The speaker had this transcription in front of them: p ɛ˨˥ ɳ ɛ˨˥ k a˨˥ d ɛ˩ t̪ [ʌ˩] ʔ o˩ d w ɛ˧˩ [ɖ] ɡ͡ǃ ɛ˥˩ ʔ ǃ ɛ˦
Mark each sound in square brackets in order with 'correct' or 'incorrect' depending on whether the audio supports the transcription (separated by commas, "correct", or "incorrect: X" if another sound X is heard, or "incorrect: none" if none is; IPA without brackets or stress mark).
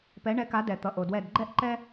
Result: correct, incorrect: d